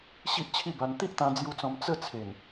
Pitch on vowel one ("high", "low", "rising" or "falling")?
high